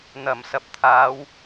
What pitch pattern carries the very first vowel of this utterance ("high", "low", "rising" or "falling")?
low